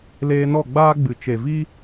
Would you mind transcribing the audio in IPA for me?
l eː˧ n ɔ˦˨ ɡ͡b aː˦ ɡ͡b ɨ˨ t͡ʃ e˨ v iː˦

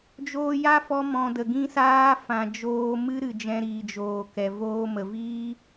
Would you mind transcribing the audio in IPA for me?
d͡ʒ oː˧ j a˦ f ɔ˦ m ɔ̃˧ d ə˨ ɡ ĩ˦ s aː˦ f ã˨ d͡ʒ oː˧ m ɨ˦ ɾ ɨ˨ d͡ʒ ɛ̃˧ ɾ iː˨ d͡ʒ oː˨ k ɛ˨ v oː˧ m ə˨ v iː˦

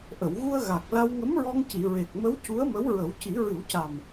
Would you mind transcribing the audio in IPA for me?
ʔ ə˨˩˨ w ɣ u˧ ə̯ ɣ a˨˩ k̚ l a˧ w ŋ ə˧˥ m ɹ ɔ˧ ŋ c i˨˩˨ ɹ e˨˩ k̚ m ə˧˥ w c u˧˥ ə̯ m ə˧˥ w ɹ ə˨˩˦ w c i˨˩˦ ɹ ɨ˨˩˦ w c a˨˩ m

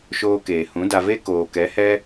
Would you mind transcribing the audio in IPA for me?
ʃ oː˧ k eː˨ h ũ˨˦ d a˧ v e˦ k oː˨ k ɛ˨˦ h ɛ˦

